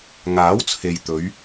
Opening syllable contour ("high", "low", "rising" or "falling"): rising